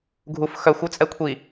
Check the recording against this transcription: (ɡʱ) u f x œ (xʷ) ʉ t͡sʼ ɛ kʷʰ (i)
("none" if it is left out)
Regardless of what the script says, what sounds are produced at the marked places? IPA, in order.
ɡʱ, xʷ, i

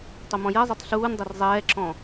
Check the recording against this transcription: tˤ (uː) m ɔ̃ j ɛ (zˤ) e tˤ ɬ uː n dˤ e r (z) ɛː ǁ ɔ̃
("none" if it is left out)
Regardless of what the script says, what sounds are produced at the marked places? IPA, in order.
u, zˤ, zˤ

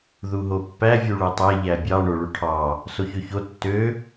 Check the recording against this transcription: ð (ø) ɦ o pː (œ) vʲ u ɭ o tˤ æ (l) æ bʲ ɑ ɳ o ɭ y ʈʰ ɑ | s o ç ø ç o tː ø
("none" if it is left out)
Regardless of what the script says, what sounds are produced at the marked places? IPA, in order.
u, æ, ʎ

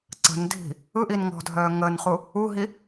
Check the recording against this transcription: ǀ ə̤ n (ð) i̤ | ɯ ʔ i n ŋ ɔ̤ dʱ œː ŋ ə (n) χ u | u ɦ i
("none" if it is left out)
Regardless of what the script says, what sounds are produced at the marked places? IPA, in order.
dʱ, n

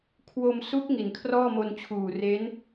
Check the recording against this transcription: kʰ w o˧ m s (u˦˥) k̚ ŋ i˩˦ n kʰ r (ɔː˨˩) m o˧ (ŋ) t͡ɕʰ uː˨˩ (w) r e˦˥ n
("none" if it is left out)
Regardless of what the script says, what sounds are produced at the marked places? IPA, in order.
u˦˥, ɔː˥˩, n, none

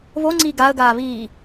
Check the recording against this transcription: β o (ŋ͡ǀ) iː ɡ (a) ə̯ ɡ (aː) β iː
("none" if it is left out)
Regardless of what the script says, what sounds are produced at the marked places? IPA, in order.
ŋ͡ǀ, a, aː

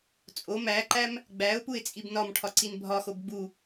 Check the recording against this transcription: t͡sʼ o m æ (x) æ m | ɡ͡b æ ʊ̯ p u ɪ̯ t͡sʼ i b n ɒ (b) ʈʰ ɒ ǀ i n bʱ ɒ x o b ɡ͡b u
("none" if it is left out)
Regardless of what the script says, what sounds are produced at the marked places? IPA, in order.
ǃ, m

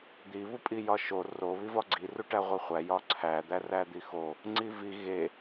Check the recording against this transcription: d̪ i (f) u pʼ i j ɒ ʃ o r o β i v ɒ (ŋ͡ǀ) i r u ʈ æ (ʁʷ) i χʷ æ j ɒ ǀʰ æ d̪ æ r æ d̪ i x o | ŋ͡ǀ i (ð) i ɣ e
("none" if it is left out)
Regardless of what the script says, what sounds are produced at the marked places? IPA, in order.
β, ɡ͡ǀ, ʁʷ, v

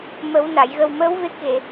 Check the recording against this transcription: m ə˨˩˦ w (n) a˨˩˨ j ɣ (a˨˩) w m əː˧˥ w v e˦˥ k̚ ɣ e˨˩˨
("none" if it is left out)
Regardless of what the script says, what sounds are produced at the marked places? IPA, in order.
n, ə˨˩

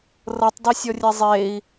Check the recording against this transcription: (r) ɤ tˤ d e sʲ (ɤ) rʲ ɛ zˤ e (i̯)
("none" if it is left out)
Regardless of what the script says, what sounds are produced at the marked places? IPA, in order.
r, ɔ, i̯

